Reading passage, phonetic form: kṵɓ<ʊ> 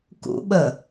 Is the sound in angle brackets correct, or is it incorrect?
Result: incorrect